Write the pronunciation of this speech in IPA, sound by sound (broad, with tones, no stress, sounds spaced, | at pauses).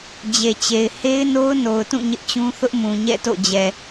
d͡ʑ e˨ t͡ɕ e˨ ɪ̯ h e˦ ɪ̯ n o˦ ʊ̯ n o˨ ʊ̯ t ũ˦˨ ɲ ɪ˦ ʔ t͡ɕ ũ˦ θ ʊ˦ ʔ m ũ˨ ɲ ɛ̰˦˨ t o̰˦˨ d͡ʑ ɛ˨